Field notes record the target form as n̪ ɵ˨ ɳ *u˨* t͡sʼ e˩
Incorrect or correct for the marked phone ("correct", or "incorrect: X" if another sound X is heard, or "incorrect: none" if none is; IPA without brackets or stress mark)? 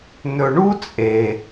incorrect: u˦